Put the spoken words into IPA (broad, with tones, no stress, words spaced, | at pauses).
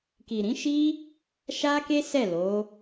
ki˨ɾĩ˨˦ʃi˦ | ʃa˦ke˦ sɛ˦˨lo˨˦